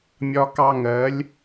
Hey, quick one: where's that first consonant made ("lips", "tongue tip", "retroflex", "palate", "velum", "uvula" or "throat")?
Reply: lips